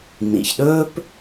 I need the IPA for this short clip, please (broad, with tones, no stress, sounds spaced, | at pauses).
n ḭ˨ ç ɗ ɵː˦ p